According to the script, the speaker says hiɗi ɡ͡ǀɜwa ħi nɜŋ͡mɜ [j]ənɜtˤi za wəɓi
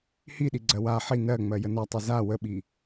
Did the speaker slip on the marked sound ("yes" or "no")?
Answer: no